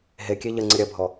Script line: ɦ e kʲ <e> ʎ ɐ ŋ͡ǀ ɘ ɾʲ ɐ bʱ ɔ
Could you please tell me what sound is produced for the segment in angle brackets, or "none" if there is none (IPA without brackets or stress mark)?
e